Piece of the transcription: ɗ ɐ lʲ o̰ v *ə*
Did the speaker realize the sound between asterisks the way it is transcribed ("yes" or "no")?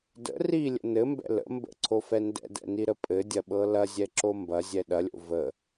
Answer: yes